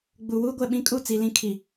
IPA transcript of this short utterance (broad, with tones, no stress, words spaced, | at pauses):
ɡ͡bu˨wuː˦ɡʷɛ˨ɓĩ˦ kʼu˦˨t͡si˨lĩ˦ kʰi˨